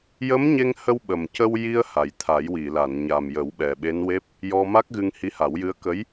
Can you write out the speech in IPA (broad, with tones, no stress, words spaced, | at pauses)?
jə˧˥mɲe˧ŋhə˧w ɓə˨˩mcə˧wji˧ə̯ ha˨˩jt̪ʰa˨˩˦jwi˨˩˨la˨˩˨n ɲa˨˩mjə˨˩˦w ɓɛ˨˩ɓe˧˥n we˦˥p̚ | jɔ˧ma˦˥k̚ɣɨ˧ŋ hi˧˥ha˨˩˦wjɨ˧˥ə̯kə˧˥j